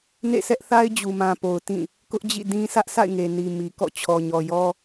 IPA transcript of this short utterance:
nḛ˦˨sɛ˦ʔθa˦ɪ̯ d͡ʑu˨mã˨po˨ʊ̯ tĩ˦˨ | kʊ˦ʔd͡ʑḭ˦˨dĩ˦ sʰä˦ʔsʰa̰˦˨ɪ̯ŋe˨ ni˨ mi˨kɔ̰˦˨ t͡ɕʰɔ˨ɲɔ˨jɔ˦

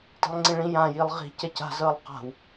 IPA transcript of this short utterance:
ti̤lˠŋ͡ǀĩɭĩ jã jilˠʁi̤ cɛca̤zɤːlˠ qa̤w

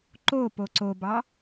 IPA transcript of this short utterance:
ǃo poǀobɑ

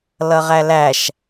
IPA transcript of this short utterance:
lʌʁælæʃ

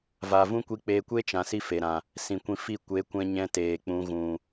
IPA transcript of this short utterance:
va˨vũ˦kʷi˧k͡peː˧ kʷe˦t͡ʃã˨ si˦fe˨ ɾã˨ | sĩ˨kʷĩ˧fi˦˨ kʷe˨˦kʷɛ̃˧ɲɛ̃˧ teː˨k͡pũ˧ ɣũ˦

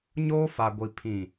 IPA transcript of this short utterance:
ɲoː˦fa˨ɡʷi˨ pʰĩ˨

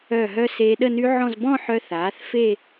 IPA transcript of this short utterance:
œ˧˩ɦœ˧ seː˧ɗə˥˧ny˦˥ʕɔ̃˥˧z bɔ̃˥˧ħœ˧ θaː˩˥θfe˥˧

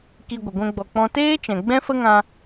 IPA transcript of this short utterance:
ki˧ɡʷə˨ ɡʷɛ̃˧ɡ͡bɔ˨k͡pɔ̃˧ teː˦t͡ʃɛ̃˨ ɡ͡bɛ̃˦fə˦ŋã˧

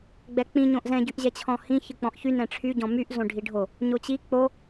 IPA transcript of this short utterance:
ɡ͡bɛk͡pĩ ɲõʔzɛ̃ ɟyʔʑɛt͡ɕʰɔ̃hĩ çɯk͡pɔ̃ʔçy nɛ̃ʈ͡ʂʰy ɟɔ̃myʔ zõɖʱiɖʱo | ɲot͡ɕi k͡po

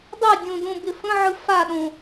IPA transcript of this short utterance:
dˤedʲõ dõbɪfə̃ʕɯ faɗõ

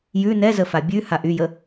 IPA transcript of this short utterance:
jʉ nɛzəfa bʲʉ haʔyjə

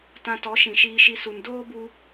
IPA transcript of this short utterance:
tã˧tɔ˨˦ʃĩ˨ ʃiː˧ʃi˧ su˨ndoː˦bu˧

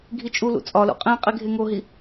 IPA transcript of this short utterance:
ɡʱit͡ʃʼulṵ t͡sʼɒlṵ qʼĩ qʼiɡʱeŋoɦi

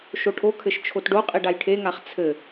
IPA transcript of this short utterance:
ʃoʈʰokʰɘʃ t͡ʃʰotɖoqʼi ɖajʈʰeŋaχ t͡sʰɘ

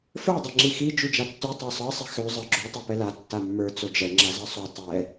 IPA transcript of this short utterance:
fə˞dˤɛ ŋ͡ǁixi d͡ʒʉd͡ʒatːʉ tˤə˞sˤɤsˤi xø zˤə˞ɡ͡ǁo tˤopɛla tːamːə˞ t͡sod͡ʒɛ ŋ͡ǁazɤsˤo tˤɛ

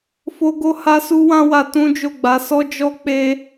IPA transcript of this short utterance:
fo˦ɡo˦ ha˦su˦wã˦wa˧ tũ˦d͡ʒo˦˨ɡ͡ba˨˦ sɔ˦d͡ʒɔ˦ k͡pe˧

